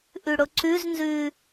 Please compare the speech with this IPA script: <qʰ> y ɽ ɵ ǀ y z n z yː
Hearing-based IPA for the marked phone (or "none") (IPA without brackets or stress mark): ʔ